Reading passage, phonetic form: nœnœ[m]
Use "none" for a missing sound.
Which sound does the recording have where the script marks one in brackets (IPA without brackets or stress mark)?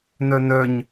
ɲ